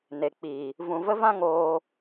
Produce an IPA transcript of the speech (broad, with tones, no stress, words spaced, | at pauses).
ne˨k͡piː˨ | vũ˨və˦vã˦ ŋoː˧